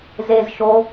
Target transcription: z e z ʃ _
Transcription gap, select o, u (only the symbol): o